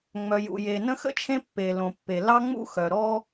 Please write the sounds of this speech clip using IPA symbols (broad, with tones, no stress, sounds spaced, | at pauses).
ŋ͡m œ˩ j ṵ˩ j e˩ n ə̃˥ x ə̰˥ t͡ʃʰ ẽ˥ pː e˩ l õ˩ pː e˩ l ɑ˥ ŋ͡m ṵ˥ x œ˩ ɾ ɔ˥